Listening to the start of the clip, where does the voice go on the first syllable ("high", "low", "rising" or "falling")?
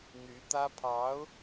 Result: rising